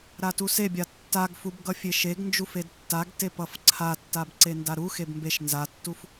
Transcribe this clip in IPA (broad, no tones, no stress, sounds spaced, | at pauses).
ɾ a t u s e bʲ a tː a ɡ f u b ɡ ʌ fʲ e ʃ e ɡ n d͡ʒ u f e d tː a ɡ t e p ʌ f ǀʰ a tː a b ǀ e n d a ɾ u x e b m b e ʃ n z a tː u f